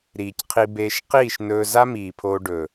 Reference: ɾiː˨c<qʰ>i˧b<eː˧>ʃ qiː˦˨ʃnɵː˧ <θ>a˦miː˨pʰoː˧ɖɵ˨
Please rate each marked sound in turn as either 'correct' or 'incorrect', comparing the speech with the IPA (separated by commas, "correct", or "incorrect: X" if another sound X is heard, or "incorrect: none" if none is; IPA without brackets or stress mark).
correct, correct, incorrect: z